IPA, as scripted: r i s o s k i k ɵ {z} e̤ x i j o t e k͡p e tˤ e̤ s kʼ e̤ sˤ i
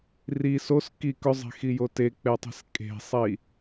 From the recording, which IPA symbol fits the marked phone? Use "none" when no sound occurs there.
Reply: zˤ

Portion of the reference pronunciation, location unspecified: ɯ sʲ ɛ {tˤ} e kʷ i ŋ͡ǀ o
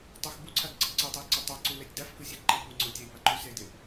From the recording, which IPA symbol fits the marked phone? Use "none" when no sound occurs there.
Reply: ǃ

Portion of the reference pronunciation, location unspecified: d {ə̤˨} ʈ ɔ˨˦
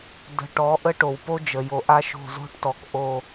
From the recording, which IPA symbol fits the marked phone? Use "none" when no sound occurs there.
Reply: ə̤˨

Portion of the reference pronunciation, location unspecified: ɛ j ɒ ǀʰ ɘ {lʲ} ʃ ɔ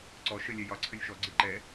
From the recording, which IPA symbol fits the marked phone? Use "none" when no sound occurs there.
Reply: lʲ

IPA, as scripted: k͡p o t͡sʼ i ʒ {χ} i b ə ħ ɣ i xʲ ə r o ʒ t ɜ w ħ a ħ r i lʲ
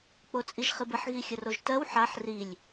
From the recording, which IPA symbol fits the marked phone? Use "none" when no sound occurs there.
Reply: χ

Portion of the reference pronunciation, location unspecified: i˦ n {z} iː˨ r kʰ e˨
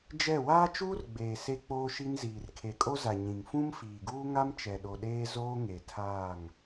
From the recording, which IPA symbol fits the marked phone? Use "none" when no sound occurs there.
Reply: z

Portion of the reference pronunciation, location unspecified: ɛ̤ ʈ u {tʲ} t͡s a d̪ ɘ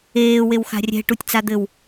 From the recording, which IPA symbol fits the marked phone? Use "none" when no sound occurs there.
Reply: tʲ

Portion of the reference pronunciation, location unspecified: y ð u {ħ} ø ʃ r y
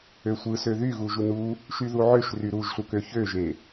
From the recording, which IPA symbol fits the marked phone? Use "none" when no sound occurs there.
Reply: ʕ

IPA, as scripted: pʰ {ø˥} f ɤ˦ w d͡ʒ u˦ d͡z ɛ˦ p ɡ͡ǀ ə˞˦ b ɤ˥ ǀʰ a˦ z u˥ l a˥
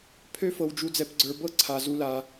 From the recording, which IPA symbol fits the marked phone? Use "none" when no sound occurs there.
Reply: ø˥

